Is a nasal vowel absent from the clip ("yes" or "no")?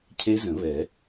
no